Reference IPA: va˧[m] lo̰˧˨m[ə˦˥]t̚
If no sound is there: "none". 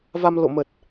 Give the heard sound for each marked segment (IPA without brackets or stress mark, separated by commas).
m, ə˨˩